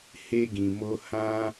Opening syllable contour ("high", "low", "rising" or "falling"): high